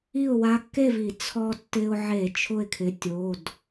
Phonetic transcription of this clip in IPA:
i˥˨ ʊ̯ w a˧ kː e˥˨ v i˧˩˧ t͡sʰ ɔ˧ tː ɪ˧ ʊ̯ ʕ e˧˩˧ t͡ʃʰ ʊ˥˨ ɪ̯ kʰ ɪ˩˧˩ tʲ o˩˧˩ d

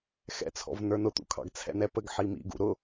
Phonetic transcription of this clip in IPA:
x ɛ̰ t͡sʰ ɔ̰ v n ə˞ n ʊ t̪ ṵ kʰ ɑ̰ ɡ t͡sʰ ɛ̰ n ɛ p ə ɡ ħ i m ḭ ɡ ṵ ɾ ʊ

